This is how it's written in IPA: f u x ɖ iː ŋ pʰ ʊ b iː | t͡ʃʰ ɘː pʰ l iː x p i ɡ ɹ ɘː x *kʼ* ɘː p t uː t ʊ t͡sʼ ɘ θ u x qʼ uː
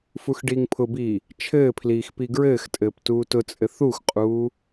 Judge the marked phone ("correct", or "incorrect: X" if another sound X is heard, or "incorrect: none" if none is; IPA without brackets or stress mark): incorrect: tʼ